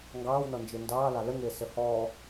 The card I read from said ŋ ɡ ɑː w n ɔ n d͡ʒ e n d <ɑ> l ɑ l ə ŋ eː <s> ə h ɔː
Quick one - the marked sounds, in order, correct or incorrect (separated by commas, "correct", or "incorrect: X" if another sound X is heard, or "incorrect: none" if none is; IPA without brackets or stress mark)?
incorrect: ɑː, correct